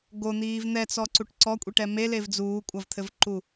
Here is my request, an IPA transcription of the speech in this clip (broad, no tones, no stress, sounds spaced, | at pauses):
ɡ o n̪ iː v n̪ ɛ t͡s ɔ ǀ u ʈ ǀ ɔ kʷʼ i ʈ ɛ m e l e v d͡z uː kʷʼ ɐ v t̪ʰ ɘ v ǃ u